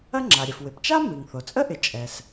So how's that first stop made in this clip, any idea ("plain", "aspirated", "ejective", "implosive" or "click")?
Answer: click